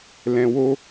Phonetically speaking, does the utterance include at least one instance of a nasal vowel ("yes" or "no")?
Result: yes